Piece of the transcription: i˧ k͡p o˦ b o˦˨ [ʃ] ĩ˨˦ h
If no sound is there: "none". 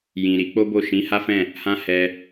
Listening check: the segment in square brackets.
ʃ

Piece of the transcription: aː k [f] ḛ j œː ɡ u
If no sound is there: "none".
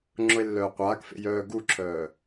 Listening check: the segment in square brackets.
f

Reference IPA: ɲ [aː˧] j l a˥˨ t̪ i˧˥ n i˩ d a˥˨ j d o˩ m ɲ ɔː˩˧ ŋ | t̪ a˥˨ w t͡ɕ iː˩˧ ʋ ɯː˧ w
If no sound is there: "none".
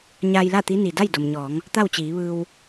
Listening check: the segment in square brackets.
aː˧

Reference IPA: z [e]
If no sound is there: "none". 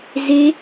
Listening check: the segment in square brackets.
e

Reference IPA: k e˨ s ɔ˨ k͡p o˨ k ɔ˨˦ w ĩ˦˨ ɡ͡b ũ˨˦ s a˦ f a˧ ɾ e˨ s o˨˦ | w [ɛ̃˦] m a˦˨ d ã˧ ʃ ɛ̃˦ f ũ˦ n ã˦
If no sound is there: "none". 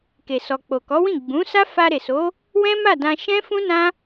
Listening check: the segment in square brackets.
ɛ̃˦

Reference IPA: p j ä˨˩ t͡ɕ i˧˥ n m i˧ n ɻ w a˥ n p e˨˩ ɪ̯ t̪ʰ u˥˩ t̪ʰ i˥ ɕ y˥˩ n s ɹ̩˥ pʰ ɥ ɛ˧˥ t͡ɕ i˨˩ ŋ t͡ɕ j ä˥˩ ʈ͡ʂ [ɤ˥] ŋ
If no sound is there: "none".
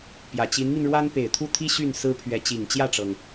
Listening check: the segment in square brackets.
ɤ˩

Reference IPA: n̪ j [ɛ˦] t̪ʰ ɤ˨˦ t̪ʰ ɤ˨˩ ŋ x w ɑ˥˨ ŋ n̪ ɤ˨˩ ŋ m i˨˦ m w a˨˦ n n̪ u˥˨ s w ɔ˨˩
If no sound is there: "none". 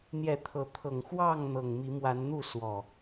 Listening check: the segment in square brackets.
ɛ˨˦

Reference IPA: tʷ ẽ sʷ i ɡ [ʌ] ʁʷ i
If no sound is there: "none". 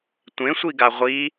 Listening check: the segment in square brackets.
a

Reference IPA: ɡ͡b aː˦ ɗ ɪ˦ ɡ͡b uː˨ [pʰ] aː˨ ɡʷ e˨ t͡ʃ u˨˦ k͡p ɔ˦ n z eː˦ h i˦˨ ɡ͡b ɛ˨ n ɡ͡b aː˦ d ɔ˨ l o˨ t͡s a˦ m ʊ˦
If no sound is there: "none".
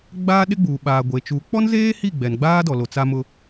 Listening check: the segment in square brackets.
ɓ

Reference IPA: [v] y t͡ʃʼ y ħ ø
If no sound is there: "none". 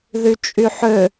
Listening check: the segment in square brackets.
ð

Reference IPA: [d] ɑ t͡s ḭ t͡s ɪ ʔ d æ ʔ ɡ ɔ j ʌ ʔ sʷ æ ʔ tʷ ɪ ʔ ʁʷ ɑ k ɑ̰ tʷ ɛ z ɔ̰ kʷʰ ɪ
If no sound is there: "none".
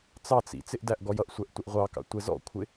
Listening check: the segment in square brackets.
t͡s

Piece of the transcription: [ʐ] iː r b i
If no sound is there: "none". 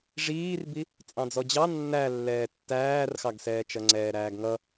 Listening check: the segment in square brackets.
ʐ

